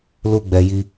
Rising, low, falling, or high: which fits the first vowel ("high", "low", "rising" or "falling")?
high